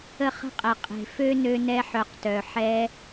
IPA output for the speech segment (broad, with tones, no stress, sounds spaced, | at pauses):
ə˦ χ ə̤˦ qʼ ɛ˨ qʼ e̤˨ f ø˦ n ø˧ n ɛ˧ ħ œ˨ q t œ˨ ħ ɛ˧